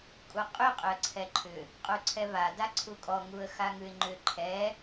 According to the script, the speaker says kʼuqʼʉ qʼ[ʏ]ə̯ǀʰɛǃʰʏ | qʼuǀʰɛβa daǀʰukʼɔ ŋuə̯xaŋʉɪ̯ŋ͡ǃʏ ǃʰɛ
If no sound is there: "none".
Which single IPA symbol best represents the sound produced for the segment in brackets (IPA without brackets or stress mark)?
ʏ